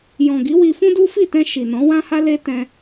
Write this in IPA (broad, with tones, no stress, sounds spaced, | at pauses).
j ɔ̃˨ ɡ i˨˦ w i˧ f ũ˦ d u˦ f i˦˨ t ɛ̃˧ ʃ i˨ n ɔ̃˨˦ w ã˦ h a˦ l e˦ t ɛ̃˧